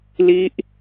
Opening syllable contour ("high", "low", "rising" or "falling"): high